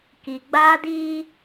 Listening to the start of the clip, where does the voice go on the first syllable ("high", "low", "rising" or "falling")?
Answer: low